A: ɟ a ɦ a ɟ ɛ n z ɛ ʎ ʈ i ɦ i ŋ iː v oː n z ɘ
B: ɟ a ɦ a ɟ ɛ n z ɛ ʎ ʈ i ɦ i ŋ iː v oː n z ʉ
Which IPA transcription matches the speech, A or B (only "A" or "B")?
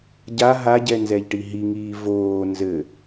A